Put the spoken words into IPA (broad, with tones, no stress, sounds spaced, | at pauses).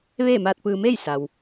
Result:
ʋ eː˥˨ m aː˧ t̚ p ɯː˧ m eː˥˨ j s a˩ w